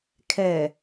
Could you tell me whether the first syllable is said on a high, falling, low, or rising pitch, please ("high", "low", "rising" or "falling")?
low